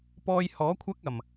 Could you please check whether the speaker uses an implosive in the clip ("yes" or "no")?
no